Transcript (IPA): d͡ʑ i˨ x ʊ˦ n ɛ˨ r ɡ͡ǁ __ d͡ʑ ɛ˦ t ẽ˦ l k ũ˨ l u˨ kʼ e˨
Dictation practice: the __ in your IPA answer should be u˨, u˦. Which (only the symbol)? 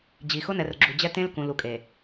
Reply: u˨